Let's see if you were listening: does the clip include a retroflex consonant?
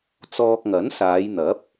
no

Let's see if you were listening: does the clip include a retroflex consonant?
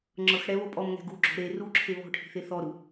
yes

